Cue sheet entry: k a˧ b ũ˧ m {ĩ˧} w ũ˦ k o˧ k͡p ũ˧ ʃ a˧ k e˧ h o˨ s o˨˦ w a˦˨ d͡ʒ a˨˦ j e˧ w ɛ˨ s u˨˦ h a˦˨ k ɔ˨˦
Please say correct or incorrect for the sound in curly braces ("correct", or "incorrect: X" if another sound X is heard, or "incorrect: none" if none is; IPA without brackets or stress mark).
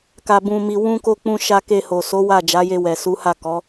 incorrect: i˧